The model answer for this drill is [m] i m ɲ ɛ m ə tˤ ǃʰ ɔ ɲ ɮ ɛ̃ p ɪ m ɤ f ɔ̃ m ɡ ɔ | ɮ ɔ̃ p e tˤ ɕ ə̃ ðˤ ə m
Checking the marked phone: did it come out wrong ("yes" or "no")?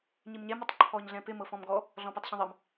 yes